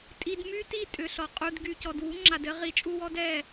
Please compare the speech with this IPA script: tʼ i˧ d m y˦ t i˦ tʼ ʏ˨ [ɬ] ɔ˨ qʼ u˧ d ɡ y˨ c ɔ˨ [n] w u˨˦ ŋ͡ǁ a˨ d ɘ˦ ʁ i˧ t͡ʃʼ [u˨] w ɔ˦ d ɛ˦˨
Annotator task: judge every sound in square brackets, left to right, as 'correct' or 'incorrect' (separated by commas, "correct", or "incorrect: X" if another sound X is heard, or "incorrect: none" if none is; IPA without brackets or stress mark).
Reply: correct, incorrect: d, incorrect: u˦